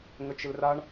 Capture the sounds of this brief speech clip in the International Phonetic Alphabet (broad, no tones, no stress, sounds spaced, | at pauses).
ŋ ə t͡ʃ ɪ l r a ɳ